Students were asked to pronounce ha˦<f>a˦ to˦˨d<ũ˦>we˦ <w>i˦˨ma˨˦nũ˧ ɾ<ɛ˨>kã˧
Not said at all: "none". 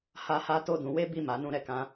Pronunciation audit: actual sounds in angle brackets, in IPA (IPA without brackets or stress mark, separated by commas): h, ũ˨˦, b, ɛ˨